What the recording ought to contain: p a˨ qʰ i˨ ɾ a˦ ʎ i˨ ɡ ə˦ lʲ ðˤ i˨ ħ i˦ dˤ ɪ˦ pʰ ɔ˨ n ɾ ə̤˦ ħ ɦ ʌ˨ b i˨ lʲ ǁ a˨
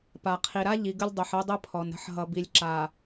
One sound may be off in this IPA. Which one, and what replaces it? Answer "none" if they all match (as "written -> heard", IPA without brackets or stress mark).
ðˤ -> dˤ